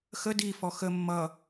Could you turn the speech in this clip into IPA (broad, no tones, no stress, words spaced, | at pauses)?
xə difɔ xə mːʌ